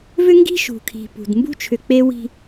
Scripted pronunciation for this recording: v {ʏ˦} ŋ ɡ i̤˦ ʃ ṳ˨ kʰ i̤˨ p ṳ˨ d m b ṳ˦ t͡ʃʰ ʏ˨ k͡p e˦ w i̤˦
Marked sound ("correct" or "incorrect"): correct